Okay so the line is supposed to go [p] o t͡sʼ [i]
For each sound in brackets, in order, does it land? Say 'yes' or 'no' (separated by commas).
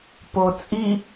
yes, yes